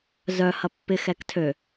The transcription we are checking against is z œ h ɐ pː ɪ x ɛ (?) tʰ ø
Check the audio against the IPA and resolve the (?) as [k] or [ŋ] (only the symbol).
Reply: k